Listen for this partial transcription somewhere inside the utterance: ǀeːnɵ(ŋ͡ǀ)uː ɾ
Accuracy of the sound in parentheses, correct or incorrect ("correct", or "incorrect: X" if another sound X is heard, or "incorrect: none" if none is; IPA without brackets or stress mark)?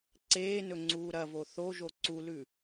correct